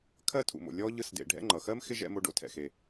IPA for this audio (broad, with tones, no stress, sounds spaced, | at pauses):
kʰ ɜ˥ tʰ ṵ˩ m o̰˨ lʲ ɔ˥ ʎ ɯ˦ s d ḛ˨ ɖʱ ɛ̰˦ ŋ͡ǃ ʌ˩ x ɜ˥ m x ɪ˥ ʒ ɛ̰˦ m o˦ ɖ o̰˥ tʰ ɛ̰˩ x e˩